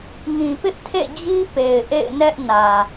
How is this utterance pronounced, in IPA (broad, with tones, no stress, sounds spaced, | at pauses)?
ŋ ĩ˨ p ɪ˦ ʔ tʰ ḛ˦˨ d͡ʑ i˦ p e˨ ɪ̯ ʔ ḛ˦˨ ɪ̯ n ɛ˦ ʔ n ä˨